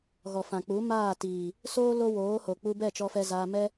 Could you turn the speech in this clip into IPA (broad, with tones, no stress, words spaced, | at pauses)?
ɣɔ˨fã˨k͡pu˨˦ maː˦˨tiː˨ | soː˦ lo˦woː˨˦ho˨ k͡pu˧bɛ˦˨ t͡ʃɔ˧fɛ˧zaː˧ mɛ˦